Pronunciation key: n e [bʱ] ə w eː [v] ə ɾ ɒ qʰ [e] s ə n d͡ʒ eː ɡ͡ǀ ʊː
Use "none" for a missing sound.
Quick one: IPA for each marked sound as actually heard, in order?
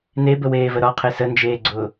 b, v, e

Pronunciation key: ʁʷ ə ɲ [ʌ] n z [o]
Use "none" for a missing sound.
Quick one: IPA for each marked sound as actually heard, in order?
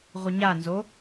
a, o

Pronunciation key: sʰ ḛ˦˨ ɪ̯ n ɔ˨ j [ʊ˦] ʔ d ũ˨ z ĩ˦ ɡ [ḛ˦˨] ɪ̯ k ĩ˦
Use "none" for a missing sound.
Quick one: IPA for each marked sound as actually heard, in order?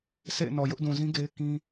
ʊ˦, e˦

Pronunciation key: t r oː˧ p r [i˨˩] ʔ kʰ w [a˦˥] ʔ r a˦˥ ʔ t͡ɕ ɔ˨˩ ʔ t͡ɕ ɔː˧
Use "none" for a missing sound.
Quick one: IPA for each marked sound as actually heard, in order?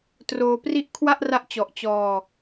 i˥˩, a˥˩

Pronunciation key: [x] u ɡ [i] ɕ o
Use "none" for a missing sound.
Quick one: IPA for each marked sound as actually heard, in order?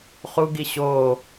χ, i

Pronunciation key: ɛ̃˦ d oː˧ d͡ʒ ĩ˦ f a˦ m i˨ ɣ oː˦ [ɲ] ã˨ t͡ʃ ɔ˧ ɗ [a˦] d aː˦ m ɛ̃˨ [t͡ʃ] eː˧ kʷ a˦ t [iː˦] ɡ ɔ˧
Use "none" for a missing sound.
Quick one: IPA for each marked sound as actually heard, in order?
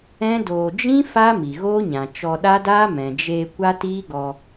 ɲ, a˦, d͡ʒ, iː˦

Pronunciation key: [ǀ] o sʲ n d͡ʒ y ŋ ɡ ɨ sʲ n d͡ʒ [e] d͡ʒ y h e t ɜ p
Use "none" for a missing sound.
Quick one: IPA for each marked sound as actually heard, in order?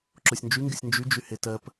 ǁ, y

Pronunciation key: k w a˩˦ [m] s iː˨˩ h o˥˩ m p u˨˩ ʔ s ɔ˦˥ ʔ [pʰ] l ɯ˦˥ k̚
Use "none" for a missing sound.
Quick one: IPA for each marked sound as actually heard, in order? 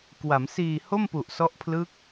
m, pʰ

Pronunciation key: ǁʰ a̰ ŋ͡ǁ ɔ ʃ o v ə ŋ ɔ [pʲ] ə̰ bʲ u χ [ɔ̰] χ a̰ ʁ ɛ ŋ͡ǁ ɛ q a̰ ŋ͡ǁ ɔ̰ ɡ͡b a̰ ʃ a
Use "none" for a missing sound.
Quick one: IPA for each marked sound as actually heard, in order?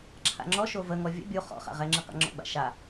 vʲ, ɔ̰

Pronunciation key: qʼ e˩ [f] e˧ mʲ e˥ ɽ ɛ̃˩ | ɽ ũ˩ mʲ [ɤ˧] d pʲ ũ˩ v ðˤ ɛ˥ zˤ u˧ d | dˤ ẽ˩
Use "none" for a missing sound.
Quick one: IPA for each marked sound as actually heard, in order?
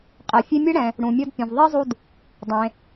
fʲ, ɤ˧

